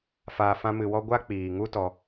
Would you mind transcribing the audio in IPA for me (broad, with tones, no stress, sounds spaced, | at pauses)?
f aː˧ f ã˦ m ɨ˧ w ɔ˦ ɡʷ a˦ k͡p iː˨ ŋ u˦ t ɔ˧